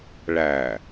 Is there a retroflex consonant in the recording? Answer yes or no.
yes